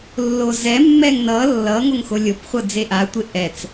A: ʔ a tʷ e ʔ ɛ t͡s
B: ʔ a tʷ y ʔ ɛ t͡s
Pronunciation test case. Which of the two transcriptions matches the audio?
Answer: A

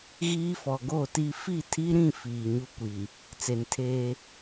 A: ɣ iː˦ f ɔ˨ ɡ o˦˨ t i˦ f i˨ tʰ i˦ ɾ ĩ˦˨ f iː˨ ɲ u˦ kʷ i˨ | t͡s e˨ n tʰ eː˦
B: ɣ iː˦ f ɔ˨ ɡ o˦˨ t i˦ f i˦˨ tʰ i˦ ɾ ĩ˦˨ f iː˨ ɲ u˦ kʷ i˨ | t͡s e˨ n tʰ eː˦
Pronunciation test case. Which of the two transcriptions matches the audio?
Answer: B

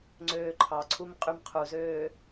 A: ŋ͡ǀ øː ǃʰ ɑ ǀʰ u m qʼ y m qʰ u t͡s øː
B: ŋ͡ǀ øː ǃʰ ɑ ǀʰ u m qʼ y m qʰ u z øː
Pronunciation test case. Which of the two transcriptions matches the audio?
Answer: B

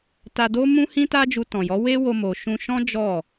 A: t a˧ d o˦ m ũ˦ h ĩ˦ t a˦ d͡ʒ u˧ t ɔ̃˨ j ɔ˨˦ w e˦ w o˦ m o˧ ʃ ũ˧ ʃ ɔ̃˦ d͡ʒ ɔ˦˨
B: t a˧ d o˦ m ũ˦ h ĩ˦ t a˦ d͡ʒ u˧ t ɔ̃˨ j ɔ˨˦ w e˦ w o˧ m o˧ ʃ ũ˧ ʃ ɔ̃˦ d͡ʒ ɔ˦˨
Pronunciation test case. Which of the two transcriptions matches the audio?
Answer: A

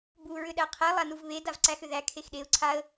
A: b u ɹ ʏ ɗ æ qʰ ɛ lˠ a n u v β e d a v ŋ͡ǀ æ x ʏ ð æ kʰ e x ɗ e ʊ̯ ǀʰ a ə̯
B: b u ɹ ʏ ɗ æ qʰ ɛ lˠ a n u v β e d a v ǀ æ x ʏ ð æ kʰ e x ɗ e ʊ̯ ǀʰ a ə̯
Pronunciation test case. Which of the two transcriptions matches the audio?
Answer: B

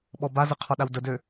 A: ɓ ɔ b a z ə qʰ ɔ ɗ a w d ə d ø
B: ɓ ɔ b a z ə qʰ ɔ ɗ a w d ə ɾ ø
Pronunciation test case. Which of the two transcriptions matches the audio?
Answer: A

